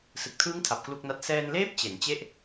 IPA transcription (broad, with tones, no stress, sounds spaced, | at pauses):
s ɯ˨˩ k̚ tʰ ɯː˦˥ ŋ tʰ a˨˩ p̚ k l u˥˩ k̚ n a˦˥ t̚ s ɛː˧ n l eː˦˥ p̚ t͡ɕ e˩˦ n t͡ɕ e˥˩ ʔ